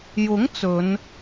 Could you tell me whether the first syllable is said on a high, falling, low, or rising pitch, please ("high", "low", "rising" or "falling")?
rising